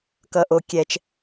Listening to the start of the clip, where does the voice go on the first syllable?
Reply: high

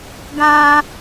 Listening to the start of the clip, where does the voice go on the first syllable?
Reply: high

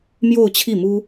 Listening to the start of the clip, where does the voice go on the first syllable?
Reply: falling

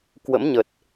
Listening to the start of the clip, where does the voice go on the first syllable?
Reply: rising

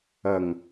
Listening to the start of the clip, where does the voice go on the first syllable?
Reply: low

